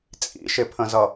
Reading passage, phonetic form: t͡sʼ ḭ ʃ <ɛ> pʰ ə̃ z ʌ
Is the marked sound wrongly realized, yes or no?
yes